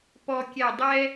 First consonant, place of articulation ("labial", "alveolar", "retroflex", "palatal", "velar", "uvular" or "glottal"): labial